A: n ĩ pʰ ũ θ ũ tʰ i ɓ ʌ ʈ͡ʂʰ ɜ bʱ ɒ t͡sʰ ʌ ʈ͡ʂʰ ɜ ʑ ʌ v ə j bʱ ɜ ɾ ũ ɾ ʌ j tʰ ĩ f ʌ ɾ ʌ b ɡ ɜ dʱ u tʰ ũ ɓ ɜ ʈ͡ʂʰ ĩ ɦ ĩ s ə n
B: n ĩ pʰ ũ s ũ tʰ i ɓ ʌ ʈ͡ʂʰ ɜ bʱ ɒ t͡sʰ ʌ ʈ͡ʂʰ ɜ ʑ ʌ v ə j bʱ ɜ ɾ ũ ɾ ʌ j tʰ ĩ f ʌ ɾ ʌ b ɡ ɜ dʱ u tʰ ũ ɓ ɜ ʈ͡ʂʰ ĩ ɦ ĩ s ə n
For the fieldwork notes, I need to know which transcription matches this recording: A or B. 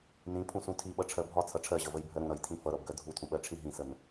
B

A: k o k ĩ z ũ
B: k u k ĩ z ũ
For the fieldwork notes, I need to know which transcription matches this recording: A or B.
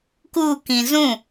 B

